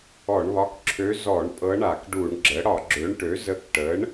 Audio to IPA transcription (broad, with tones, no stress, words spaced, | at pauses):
ɔ˧˩˧ɳβɒ˧˥kǁʰø˧˥ zɔ˧˩˧ɳ pʼɤ˧˥ɳa˧˩˧kɖu˧˩˧ɳɡ͡ǁə˩˥ ɽɒ˧˩˧ɡ͡ǁø˩˥ɳʈø˩˥zə˧˥k ʈə˩˥ɳ